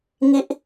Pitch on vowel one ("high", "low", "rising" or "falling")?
high